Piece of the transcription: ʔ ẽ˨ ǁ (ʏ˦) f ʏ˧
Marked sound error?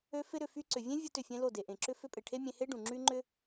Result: no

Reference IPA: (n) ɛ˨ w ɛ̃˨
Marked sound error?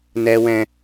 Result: no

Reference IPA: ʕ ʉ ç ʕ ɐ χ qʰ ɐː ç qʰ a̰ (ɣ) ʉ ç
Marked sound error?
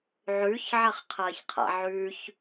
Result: yes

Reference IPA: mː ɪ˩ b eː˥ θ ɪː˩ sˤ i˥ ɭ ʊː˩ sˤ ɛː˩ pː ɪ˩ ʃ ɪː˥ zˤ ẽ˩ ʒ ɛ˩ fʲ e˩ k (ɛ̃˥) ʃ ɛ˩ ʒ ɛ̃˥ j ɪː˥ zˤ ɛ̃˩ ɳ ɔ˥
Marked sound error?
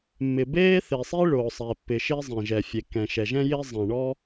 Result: yes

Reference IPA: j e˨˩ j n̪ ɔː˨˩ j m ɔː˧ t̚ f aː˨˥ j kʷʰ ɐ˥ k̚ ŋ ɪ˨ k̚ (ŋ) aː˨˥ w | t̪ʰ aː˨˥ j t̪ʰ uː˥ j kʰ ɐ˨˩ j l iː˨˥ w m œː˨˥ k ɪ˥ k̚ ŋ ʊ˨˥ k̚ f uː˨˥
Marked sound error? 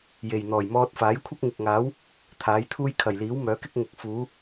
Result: no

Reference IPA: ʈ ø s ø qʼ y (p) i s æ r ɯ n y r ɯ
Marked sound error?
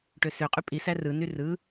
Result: yes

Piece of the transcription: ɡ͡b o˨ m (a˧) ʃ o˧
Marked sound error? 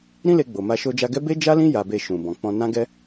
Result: no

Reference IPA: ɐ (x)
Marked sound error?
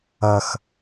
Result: no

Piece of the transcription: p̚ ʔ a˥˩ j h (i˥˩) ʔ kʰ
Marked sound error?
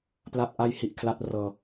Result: yes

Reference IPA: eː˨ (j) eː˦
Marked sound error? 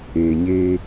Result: yes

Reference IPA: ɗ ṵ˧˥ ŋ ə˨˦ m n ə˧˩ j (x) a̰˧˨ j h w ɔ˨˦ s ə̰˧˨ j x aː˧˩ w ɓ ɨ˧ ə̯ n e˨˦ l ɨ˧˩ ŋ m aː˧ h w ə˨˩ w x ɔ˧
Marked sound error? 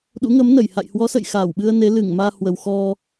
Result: yes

